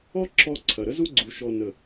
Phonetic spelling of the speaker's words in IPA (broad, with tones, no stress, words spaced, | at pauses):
ɔ˦ ǁɔ˧ǀʰɐ˨ ɾə˦zu˦ɡ͡ǀu˨ ʃɔ˨nə˨